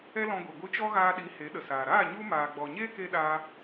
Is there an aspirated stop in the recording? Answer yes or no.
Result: no